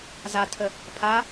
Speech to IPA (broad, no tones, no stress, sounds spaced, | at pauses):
z a tʰ ə | pʰ a